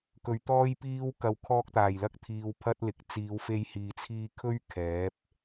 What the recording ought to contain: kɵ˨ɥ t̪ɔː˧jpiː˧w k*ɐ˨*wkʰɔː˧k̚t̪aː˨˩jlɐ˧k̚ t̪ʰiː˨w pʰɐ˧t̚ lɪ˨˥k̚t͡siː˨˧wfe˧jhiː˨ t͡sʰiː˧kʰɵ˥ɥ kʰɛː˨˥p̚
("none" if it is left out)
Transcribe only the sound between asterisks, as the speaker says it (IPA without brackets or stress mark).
ɐ˨